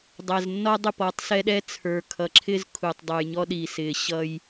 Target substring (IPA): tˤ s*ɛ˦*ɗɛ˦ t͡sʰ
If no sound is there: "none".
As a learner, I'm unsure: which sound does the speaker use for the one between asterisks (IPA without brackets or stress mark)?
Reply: ɛ˦